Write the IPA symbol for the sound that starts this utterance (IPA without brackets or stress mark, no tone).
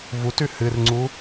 v